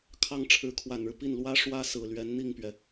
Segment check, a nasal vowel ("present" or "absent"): absent